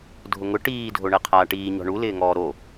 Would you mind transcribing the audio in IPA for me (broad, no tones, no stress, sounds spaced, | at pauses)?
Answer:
dʱ ʊ ŋ ʊ ʈ iː dʱ o ɳ ɛ qʰ aː ʈ iː ɲ ɔ̤ ɳ u l ɪː ŋ ɔː ɾ o